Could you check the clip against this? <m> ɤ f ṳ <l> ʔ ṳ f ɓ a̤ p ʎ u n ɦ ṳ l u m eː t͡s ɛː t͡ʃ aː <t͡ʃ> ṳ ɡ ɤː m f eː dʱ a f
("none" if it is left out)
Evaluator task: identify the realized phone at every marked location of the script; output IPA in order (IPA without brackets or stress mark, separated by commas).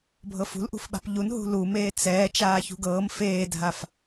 bʱ, l, ç